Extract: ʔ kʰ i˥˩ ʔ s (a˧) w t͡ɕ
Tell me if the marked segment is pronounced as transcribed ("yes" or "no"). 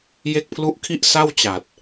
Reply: no